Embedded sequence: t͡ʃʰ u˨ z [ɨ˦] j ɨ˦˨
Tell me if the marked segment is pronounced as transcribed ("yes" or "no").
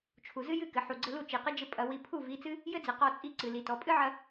yes